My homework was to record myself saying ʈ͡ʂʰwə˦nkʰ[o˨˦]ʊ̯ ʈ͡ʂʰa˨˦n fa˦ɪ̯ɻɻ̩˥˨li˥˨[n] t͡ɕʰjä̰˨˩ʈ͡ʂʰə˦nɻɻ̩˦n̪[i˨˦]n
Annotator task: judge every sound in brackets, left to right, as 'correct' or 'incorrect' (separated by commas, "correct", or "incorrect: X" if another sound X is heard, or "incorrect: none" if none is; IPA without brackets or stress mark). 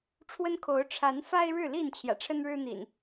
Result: correct, correct, incorrect: ḭ˨˩